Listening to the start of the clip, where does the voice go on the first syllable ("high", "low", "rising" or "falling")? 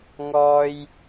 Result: high